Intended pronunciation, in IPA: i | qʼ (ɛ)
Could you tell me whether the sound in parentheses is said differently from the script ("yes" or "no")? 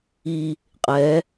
no